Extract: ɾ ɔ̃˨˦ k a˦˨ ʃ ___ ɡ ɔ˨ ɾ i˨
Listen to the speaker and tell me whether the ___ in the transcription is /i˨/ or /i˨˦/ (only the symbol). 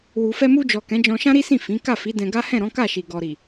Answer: i˨